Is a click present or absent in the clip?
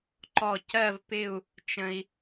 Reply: present